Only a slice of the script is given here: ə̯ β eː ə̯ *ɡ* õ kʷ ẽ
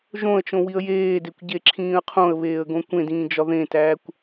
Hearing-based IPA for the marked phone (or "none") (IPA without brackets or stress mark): ɡ